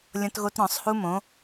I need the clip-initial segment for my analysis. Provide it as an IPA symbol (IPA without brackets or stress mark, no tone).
lʲ